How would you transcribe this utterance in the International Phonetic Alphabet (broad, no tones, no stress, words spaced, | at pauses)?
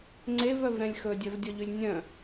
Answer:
ŋ͡ǀevœvɾɛ̃lʲ xɵdʲœvdʲɔʎylʲ nʲœ̃